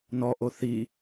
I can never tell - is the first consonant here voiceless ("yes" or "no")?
no